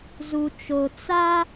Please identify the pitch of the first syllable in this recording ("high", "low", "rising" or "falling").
low